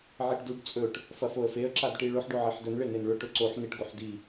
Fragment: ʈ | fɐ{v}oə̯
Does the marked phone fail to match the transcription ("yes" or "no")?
yes